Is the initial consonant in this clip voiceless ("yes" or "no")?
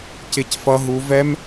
yes